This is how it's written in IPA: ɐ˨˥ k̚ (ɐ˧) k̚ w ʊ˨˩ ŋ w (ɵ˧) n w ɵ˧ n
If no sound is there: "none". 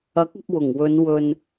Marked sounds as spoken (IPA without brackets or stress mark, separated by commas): ɐ˧, ɵ˨˧